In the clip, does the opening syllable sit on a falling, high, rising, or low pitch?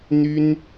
high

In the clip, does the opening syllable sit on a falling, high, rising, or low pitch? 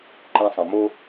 high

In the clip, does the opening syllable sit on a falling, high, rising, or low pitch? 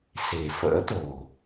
low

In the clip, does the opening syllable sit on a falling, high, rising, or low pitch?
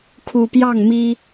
low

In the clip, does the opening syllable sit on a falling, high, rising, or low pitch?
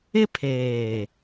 high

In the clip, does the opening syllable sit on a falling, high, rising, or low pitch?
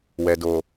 low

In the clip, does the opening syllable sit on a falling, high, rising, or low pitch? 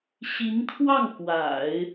rising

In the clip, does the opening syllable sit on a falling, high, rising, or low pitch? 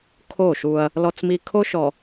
falling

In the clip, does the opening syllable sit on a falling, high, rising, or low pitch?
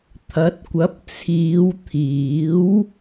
rising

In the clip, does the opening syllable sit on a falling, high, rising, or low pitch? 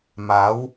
rising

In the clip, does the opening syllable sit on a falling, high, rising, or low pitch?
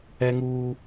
high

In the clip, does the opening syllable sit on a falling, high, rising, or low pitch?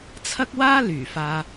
high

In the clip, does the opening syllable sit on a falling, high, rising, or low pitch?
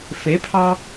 rising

